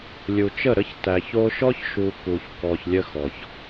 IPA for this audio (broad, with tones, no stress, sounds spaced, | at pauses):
lʲ u˨ t͡ʃ ə˦˨ ɾ ə˦ ç t æ˨ ç o˦ ʃ ɔ˦ ç ʃ u˨ k u˨ ç k ɔ˨ ç lʲ ə˦ x ɔ˨ ç